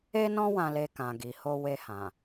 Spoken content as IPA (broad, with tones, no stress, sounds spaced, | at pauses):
e˦ n ɔ̃˦ w ã˧ l e˧ k ã˨ ɡ i˨ h o˧ w e˧ h ã˨